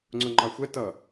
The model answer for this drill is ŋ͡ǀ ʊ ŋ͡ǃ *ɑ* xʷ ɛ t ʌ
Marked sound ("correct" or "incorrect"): correct